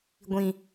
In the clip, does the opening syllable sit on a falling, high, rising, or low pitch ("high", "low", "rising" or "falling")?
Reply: low